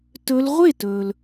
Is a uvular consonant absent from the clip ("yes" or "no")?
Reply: no